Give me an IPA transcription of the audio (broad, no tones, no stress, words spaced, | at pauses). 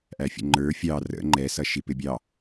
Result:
ʔæfʲə̰ŋ͡ǃə˞ fʲɑ rə̰ ŋ͡ǃɛsʌʃi pɪbʲɑ